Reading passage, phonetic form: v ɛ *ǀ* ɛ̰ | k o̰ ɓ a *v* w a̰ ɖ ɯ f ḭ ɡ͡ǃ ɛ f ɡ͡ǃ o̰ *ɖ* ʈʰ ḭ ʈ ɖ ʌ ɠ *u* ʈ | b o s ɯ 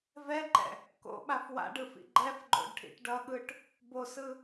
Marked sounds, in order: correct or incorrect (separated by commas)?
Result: incorrect, incorrect, correct, incorrect